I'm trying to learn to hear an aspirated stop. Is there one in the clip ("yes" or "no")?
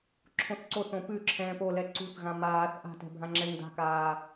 yes